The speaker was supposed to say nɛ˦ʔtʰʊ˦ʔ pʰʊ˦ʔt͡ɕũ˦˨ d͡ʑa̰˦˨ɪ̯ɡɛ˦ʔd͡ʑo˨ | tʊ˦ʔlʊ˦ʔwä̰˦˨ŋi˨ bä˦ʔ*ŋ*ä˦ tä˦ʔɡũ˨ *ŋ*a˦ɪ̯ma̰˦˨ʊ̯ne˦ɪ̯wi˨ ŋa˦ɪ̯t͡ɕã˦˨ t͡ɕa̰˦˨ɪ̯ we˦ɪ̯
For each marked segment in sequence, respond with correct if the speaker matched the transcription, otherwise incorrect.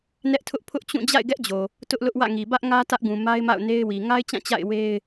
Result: correct, incorrect

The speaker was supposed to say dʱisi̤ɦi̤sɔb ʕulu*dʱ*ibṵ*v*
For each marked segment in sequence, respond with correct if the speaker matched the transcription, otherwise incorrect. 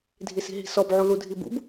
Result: correct, incorrect

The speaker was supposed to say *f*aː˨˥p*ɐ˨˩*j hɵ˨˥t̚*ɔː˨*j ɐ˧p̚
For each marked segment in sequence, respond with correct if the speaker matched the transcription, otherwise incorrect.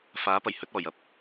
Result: correct, correct, incorrect

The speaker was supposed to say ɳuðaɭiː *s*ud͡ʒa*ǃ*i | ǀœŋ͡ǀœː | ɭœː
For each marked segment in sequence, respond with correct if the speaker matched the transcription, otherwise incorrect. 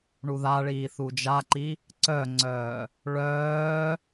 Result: incorrect, correct

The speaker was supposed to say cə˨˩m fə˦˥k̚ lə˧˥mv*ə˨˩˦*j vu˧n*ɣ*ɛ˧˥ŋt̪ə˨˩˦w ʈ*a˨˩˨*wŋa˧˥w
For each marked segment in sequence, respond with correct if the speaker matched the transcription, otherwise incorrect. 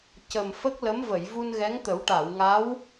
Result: incorrect, correct, correct

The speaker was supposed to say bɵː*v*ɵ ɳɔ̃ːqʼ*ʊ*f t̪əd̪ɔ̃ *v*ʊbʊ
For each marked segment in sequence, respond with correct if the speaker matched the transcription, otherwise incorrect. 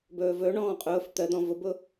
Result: correct, incorrect, correct

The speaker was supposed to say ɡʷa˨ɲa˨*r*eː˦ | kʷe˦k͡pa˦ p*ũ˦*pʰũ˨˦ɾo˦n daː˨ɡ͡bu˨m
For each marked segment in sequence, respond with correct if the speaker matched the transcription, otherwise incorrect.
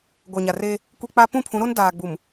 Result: correct, incorrect

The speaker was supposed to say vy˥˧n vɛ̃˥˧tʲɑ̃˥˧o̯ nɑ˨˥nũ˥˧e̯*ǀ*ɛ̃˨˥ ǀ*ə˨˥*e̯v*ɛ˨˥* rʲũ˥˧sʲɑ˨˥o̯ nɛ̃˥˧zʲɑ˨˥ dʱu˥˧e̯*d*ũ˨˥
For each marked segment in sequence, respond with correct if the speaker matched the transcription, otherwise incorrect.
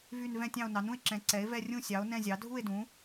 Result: incorrect, incorrect, incorrect, correct

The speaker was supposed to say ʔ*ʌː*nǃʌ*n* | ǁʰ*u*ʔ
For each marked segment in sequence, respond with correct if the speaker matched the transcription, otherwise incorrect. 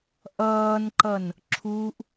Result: correct, correct, correct

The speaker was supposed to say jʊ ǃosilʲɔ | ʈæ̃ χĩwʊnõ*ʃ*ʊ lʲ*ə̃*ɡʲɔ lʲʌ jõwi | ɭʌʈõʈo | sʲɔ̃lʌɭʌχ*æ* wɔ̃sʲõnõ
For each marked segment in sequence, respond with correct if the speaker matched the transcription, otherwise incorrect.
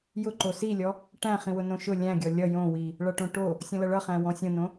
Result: correct, incorrect, incorrect

